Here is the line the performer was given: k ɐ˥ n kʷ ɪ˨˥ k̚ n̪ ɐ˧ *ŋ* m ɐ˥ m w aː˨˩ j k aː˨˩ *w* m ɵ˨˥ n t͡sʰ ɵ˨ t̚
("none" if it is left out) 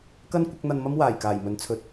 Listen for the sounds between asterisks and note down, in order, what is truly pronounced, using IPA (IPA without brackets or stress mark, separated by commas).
n, j